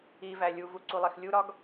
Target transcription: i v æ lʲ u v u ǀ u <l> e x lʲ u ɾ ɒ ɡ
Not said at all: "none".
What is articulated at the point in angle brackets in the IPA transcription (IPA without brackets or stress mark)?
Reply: lˠ